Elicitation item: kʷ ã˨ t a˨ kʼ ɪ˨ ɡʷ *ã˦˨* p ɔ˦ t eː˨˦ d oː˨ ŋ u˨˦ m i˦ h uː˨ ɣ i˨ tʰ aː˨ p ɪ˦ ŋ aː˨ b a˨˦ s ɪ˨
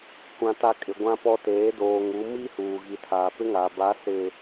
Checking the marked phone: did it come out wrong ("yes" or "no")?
yes